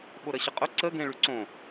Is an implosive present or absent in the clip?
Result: present